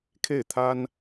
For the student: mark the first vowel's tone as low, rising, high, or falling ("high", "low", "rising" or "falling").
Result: falling